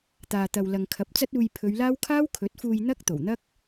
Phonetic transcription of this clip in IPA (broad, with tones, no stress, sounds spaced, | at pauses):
t̪ aː˨ t̪ ɐ˨ w l ɐ˨ ŋ kʰ ɐ˨˥ p̚ t͡s ɐ˥ t̚ uː˧ j pʰ ɵ˨˧ ɥ l aː˥ w kʰ aː˥ w kʰ ɵ˨˥ t̚ f uː˧ j n̪ ɐ˥ k̚ t̪ o˨˩ w n̪ ɐ˥ k̚